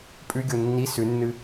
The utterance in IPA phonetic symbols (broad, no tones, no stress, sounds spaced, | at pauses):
pʼ ʉ ɡʲ o nː i s ʉ nː ɨ